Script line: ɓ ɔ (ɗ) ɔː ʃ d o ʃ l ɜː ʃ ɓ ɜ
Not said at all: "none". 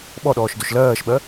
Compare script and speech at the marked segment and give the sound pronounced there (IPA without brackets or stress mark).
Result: ɗ